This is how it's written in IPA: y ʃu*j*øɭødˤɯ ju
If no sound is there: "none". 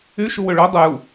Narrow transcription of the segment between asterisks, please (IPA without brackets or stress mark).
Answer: w